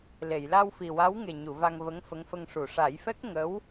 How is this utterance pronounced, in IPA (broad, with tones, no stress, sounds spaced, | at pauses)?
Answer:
l e˨˩˨ j l a˧ w f i˨˩ w a˧˥ w ŋ e˨˩ ɲ u˨˩˨ v a˧ ŋ v ə˧˥ ŋ f ə˧˥ ŋ f ə˧ ŋ ʂ u˨˩˨ ʂ a˨˩˦ j f ɛ˦˥ k̚ ŋ ə˧˥ w